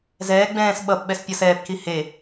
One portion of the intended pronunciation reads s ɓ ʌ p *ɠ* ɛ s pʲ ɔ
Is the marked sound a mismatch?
yes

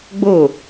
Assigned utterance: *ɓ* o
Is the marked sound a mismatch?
yes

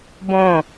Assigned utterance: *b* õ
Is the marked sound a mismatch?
no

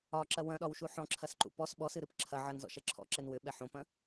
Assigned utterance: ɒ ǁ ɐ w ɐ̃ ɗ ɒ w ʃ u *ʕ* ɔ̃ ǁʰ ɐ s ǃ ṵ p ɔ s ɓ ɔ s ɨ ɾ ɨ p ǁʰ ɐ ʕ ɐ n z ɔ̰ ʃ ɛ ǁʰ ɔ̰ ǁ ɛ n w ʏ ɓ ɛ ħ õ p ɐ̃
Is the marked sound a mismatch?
yes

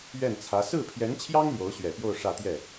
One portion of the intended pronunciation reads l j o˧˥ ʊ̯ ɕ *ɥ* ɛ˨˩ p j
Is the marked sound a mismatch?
no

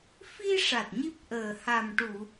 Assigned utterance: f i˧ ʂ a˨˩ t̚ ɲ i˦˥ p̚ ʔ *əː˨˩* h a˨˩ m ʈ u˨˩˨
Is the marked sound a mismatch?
no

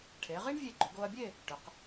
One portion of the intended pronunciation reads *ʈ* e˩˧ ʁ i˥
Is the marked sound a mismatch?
yes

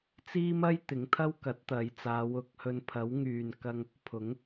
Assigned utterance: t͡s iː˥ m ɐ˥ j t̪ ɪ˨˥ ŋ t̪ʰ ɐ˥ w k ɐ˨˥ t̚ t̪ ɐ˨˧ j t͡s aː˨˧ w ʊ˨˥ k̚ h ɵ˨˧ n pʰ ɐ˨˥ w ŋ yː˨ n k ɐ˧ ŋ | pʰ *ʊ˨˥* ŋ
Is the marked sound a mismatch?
no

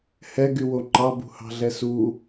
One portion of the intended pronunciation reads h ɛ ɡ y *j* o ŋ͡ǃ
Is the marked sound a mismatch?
yes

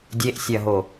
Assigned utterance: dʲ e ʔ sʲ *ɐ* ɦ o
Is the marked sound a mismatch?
no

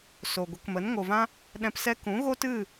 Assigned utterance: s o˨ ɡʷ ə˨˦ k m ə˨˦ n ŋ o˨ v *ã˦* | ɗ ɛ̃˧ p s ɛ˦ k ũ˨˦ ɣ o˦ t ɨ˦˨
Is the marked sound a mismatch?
no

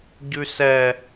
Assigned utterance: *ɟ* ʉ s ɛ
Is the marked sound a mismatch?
no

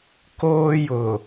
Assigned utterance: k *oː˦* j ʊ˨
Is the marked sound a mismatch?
no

